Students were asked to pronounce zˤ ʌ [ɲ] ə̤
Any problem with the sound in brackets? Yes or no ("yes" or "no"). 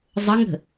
yes